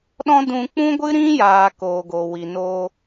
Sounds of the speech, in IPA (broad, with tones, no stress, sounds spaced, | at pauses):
ɗ ɔ̃˦ d ũ˧ k͡p ũ˦ ɡʷ ɨ˦ ɾ ĩ˦ j aː˨ k oː˨ ɡ o˨ w i˨ n oː˧